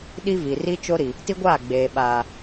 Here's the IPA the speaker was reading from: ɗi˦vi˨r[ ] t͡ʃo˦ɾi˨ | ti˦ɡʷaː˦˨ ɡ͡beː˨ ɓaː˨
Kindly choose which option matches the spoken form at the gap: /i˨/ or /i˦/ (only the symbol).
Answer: i˦